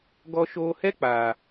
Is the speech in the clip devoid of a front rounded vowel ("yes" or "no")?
yes